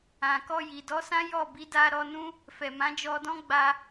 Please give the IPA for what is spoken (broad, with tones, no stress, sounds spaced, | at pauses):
ã˨ k ɔ˧ j i˨ d ɔ˨˦ s ã˦ j ɔ˦˨ b i˨˦ d a˧ ɾ ɔ˧ n ũ˦ | f ɛ˨ m ã˨˦ d͡ʒ ɔ˧ d ɔ̃˦ ɡ͡b a˧